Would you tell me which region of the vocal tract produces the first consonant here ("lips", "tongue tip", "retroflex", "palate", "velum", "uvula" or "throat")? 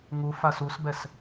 velum